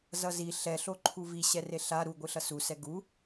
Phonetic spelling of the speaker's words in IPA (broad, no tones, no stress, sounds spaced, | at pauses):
z ʌ z i ɬ ɛ ɬ o ǃʰ u v i ɕ ɛ r e ɬ a ɾ u ɡʷ ɯ ɬ ʌ s u s ɛ ɡ u